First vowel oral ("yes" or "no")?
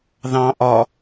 no